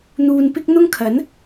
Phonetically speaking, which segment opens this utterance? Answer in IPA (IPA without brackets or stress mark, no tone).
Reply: n̪